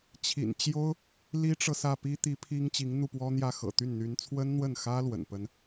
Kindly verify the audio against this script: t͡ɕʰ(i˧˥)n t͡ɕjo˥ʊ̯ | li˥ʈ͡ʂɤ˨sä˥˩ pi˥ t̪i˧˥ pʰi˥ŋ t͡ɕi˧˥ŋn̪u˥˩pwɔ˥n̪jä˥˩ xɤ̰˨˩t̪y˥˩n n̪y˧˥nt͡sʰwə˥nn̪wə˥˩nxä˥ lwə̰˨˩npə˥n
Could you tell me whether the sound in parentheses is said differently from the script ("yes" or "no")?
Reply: yes